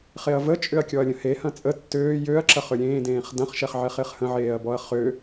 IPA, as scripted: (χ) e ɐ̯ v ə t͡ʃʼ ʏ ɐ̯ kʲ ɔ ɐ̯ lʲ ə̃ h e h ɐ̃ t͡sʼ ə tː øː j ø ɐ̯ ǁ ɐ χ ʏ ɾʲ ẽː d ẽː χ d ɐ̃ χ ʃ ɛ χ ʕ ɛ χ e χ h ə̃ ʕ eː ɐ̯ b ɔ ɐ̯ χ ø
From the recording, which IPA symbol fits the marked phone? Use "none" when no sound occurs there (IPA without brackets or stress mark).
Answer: χ